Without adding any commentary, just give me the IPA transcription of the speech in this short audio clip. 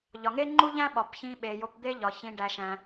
ʎ ɒ˩ ŋ e˦ ŋ͡ǃ u˦ ʎ æ̃˦ ɓ ɒ˩ p ç ĩ˨ ɓ e˩ j o˨ p d̪ e˦ ʎ ɒ˩ ç ĩ˨ ɖ æ˨ ʃ æ̃˨

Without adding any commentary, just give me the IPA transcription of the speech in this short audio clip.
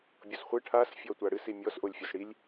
bʲ o s χʷ ɨ ʈʰ a s fʲ ɔ tʷ a ɽ ɨ s i mʲ ɔ s ʔ o lʲ fʲ o s ɽ i lʲ

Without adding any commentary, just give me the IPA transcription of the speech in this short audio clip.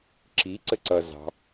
ǁ i ǀ ə ǀ ʌ z ɑ̤

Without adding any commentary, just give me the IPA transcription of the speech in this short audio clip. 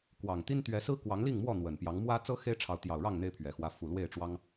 k w ɑ˨˩ ŋ t̪ i˦ n t̪ ɥ ɛ˨˦ s ɹ̩˦ k w ɑ˨˦ ŋ l i˥˨ ŋ m w ɔ˥˨ n̪ w ə˨˩ n p j ɑ˨˦ ŋ m w ä˦ t͡s ɤ˦ x e˦ ɪ̯ ʈ͡ʂʰ ɑ˨˦ ʊ̯ t̪ j ɑ˨˩ ʊ̯ ɻ ɑ˥˨ ŋ n̪ e˦ ɪ̯ pʰ ɥ ɛ˨˩ x w ä˨˦ f u˨˩ l w e˥˨ ɪ̯ ʈ͡ʂ w ɑ˦ ŋ

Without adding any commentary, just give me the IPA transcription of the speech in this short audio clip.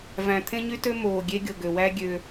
v æ̃˨ t̪ʰ ẽ˦ ɲ y˦ t ø˦ m oː˨ ɡʲ e˦ ɡʲ o˨ ɡ ø˨ w æ˦ ɡʲ ø˧

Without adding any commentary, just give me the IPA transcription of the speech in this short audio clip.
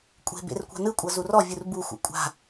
kʷʼ e̤ b ḛ r kʷ a̤ n ɯ kʷʼ ɤ z u r ɔ vʲ u r b u xʷ ḛ kʷʼ a̤

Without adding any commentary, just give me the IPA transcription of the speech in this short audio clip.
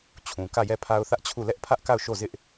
t͡ɕʰ ũ˨ k ä˦˨ j ɛ˦˨ pʰ a˦ ʊ̯ θ ä˦ ʔ t͡ɕʰ u˦˨ l ɛ˦ ʔ pʰ ä˦ ʔ k a˦˨ ʊ̯ ʃ o˦˨ z ɪ˦ ʔ

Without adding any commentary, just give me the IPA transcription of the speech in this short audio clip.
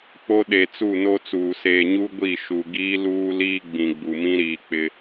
k͡p o˦ ɗ e˨ t͡s u˦˨ n o˦ t͡s uː˨ s eː˨ ɲ u˦ ɡʷ i˦˨ ʃ u˨ ɡ iː˦ l uː˦ l iː˦ ɡ͡b ĩ˨ ɡ͡b u˨ m ĩ˦ ɾ iː˨ k͡p ɪ˦

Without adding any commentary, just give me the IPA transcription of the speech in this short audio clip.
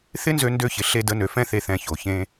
θ ɪ˦ n z ø˧ n d ø˧ ç ɪ˨ ɬ e˧ d ə˨˦ n ø˨ f ɛ̃˦ θ e˧ θ ɛ̃˧ ç o˨ ç ẽ˧

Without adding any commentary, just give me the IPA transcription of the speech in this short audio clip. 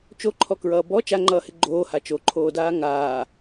t͡ʃ o ǃʰ ɔ k ɹ ʌː b ɔ t͡ʃ a ŋ͡ǃ ʌː h ɪ ɡ͡ǃ oː h a t͡ʃ o ǃʰ oː d aː ŋ aː

